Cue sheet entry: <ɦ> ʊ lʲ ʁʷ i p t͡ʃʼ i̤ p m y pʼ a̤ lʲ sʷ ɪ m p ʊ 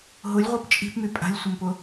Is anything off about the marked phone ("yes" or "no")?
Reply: no